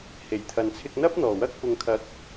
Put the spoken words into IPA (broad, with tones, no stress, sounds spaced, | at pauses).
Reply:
h e˨˩ j t̪ʰ ɐ˨ n t͡sʰ ɪ˧ k̚ n̪ ɐ˥ p̚ n̪ ɔː˨˩ w ɐ˥ k̚ p ʊ˨ ŋ kʰ ɐ˨˥ k̚